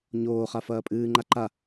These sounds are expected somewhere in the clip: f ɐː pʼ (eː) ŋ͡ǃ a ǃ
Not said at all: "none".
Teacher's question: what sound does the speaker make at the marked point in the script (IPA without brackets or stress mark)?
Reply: ɨː